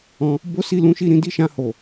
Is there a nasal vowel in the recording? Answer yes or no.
yes